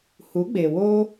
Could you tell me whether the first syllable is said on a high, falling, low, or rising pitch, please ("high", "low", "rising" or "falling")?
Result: rising